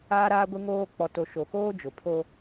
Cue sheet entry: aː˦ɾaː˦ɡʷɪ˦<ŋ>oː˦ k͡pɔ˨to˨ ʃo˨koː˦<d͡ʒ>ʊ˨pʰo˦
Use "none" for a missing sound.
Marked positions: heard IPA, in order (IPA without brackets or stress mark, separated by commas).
ŋ, d͡ʒ